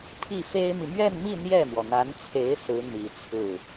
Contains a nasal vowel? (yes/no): no